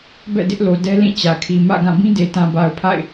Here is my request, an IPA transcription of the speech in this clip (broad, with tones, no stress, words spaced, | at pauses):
bɛ̰˦˨dɪ˦ʔlo˨ dɛ˦lĩ˦˨ t͡ɕä˨kʰi˨ mä̰˦˨ɡã˦˨ bĩ˦de˨tã˨ba˨ʊ̯ pʰa̰˦˨ɪ̯